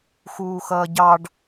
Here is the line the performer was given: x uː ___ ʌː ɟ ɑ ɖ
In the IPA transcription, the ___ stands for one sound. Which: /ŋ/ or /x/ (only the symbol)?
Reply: x